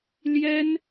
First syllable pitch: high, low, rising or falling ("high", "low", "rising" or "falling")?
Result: high